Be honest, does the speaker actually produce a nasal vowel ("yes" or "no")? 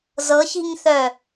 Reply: no